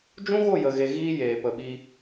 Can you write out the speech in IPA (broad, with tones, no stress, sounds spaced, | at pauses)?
d͡ʒ ũ˦ ɣ o˦˨ j ə˨ ɣ e˨ ɣ iː˦ j eː˨ p ə˨ ɓ i˧